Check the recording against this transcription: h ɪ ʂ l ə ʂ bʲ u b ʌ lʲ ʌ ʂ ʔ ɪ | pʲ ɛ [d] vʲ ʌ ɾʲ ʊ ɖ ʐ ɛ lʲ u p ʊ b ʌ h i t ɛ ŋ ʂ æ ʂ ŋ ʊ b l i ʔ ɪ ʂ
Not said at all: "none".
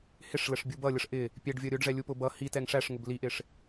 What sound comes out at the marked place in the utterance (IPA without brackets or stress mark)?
ɖ